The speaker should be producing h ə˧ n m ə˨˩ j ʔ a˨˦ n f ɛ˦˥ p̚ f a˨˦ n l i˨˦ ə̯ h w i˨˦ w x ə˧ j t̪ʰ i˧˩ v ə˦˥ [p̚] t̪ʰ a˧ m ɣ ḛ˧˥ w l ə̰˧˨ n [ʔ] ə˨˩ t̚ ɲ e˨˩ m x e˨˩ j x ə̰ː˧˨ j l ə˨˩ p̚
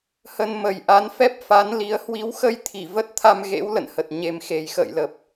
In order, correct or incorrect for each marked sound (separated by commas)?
incorrect, incorrect